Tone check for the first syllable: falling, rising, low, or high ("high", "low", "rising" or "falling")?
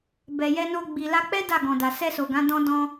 low